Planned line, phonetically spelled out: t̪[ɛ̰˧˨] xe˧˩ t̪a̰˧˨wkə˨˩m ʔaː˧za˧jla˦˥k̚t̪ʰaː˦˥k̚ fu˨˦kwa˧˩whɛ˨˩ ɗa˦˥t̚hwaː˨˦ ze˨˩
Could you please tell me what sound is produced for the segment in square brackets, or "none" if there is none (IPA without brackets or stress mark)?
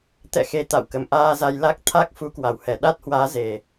ɛ̰˧˨